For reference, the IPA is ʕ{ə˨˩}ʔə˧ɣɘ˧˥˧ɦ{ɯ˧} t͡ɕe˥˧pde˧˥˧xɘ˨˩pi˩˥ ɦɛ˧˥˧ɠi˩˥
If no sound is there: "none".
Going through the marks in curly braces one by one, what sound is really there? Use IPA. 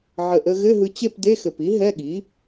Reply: ə˨˩, ɯ˧

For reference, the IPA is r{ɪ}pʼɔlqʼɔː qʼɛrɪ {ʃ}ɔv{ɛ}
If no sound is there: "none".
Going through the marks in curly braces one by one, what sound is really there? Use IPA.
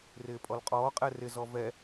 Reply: ɪː, z, ɛ

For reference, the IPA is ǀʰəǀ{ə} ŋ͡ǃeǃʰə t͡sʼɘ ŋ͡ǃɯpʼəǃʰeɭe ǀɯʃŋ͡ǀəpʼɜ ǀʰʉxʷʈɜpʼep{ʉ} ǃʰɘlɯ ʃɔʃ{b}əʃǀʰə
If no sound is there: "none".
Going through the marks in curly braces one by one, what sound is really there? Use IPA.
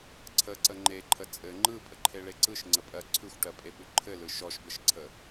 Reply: ə, ʉ, b

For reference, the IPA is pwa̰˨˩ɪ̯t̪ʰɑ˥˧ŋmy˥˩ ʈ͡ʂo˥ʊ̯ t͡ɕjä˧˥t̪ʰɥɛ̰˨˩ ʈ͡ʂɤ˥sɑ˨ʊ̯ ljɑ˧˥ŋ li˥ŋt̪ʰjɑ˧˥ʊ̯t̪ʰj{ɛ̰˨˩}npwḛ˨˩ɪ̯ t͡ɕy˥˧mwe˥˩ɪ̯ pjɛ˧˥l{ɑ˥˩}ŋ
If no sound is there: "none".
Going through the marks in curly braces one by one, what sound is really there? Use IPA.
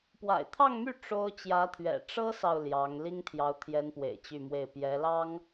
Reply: ɛ˧˥, ɑ˥

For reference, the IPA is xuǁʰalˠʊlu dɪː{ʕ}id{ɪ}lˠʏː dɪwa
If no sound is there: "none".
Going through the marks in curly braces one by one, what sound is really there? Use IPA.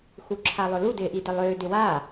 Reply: ʔ, ɪ

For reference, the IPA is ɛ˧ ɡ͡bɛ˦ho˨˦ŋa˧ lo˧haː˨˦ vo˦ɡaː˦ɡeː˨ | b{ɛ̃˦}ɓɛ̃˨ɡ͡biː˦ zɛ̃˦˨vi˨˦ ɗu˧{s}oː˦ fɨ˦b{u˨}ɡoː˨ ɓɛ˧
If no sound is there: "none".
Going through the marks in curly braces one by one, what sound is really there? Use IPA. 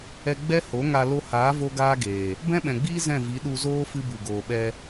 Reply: ɛ̃˦, z, u˨

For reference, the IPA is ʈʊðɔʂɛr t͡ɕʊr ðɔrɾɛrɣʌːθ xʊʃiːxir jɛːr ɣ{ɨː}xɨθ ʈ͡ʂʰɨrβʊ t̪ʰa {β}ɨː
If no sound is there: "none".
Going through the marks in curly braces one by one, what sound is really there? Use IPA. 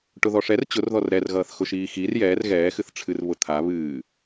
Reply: ɛː, β

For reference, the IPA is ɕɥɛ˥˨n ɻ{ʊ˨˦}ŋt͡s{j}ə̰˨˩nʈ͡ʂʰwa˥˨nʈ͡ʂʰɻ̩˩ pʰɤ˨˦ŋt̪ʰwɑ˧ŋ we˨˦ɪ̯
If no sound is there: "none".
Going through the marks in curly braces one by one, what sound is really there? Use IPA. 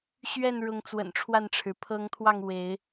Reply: ʊ˨˦, w

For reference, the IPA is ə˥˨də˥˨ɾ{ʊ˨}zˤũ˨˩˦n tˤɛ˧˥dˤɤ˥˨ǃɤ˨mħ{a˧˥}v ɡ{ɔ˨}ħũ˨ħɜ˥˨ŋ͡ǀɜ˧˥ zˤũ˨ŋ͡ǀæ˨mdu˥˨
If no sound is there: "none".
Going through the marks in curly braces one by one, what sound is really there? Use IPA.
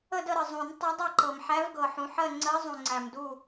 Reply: ə˨, æ˧˥, ɤ˨

